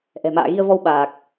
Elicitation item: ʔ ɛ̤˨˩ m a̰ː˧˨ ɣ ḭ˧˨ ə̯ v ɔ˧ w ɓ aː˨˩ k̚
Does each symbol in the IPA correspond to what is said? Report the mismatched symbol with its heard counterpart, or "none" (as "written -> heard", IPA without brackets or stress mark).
ḭ˧˨ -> i˧